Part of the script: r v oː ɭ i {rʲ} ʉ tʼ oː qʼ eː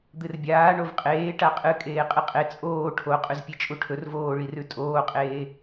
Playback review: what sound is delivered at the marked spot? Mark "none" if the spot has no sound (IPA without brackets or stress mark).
r